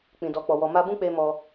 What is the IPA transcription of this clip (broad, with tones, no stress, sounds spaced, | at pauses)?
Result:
k͡p ĩ˨ d ɔ˨ k͡p ɔ˨ w ɔ˨ m a˧ b ũ˦ k͡p e˧ m ɔ˧